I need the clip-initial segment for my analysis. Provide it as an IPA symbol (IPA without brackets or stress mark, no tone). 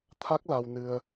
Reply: t̪ʰ